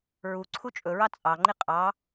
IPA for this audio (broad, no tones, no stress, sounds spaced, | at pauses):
ɹ u ǀʰ u t͡ʃʼ ɵ ɹ ɑ t͡sʼ ɑ ŋ͡ǃ i qʼ ɑ